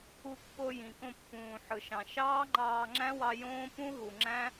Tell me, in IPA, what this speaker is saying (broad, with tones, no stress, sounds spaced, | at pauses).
u˧ kː o˧ j ĩ˨ k õ˧ pː ũː˨ ħ ɯ˨ ʃ ɑ̃˨ ʃ ɑː˦ ŋ͡ǃ ɑː˧ ŋ͡ǁ æ̃˦ w ɑ˧ j õː˦ p ũ˦ ɦ u˨ ŋ͡ǁ æ̃˦